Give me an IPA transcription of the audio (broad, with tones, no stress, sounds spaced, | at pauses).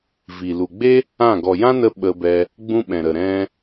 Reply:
v i˨ l u˨ ɡ͡b e˦ | ã˦˨ ɡ ɔ˨ j ã˦ n ə˧ ɓ ə˧ b ɛ˧ | ɡ͡b ũ˧ ɓ ɛ̃˨ ɾ ə˨ ɾ ɛ̃˦